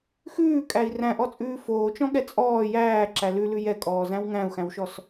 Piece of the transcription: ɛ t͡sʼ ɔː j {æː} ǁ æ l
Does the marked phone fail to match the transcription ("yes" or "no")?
no